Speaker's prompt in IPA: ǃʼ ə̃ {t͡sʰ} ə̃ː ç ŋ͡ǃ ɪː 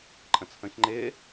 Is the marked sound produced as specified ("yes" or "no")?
yes